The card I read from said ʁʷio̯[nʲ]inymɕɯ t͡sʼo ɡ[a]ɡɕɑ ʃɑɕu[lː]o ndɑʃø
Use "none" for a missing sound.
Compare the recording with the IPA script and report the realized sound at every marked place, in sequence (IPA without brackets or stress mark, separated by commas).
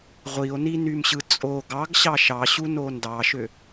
n, ɑ, n